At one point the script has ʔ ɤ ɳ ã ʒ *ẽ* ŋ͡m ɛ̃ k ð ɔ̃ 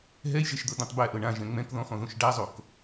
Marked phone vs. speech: incorrect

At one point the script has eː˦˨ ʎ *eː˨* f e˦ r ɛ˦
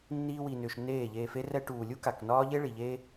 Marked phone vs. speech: incorrect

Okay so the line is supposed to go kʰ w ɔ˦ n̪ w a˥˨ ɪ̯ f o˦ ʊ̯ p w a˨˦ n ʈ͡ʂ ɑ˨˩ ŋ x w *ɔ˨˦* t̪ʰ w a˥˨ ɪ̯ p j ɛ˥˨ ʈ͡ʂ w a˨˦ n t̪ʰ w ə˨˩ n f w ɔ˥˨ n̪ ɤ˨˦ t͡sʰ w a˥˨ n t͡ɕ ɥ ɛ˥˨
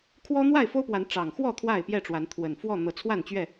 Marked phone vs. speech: incorrect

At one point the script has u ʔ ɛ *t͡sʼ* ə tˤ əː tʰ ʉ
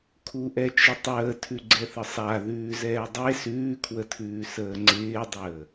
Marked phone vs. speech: incorrect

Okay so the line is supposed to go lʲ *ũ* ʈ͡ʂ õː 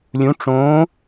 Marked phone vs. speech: correct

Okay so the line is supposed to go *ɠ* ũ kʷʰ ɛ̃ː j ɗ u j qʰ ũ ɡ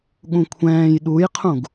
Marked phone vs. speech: correct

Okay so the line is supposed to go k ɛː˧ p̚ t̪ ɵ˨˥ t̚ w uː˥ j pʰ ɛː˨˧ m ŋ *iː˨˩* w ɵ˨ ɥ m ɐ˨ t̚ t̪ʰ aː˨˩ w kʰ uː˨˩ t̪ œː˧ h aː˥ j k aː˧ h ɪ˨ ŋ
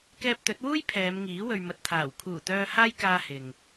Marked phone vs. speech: incorrect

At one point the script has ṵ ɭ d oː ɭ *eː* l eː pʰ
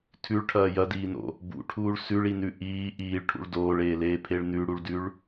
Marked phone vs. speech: correct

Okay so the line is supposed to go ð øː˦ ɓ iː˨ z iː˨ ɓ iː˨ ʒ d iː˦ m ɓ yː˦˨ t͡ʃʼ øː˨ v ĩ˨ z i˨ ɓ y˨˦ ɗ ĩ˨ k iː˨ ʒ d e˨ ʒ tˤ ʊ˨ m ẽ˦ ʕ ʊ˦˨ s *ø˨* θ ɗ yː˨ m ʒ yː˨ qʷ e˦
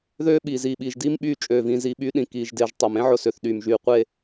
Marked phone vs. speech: correct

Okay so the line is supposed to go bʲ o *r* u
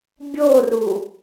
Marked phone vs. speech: correct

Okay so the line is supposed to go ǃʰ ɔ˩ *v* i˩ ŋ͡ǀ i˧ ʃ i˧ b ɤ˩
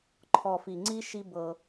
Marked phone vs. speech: incorrect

